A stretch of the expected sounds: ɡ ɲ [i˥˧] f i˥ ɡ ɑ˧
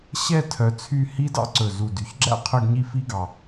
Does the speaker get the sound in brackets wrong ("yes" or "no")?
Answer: no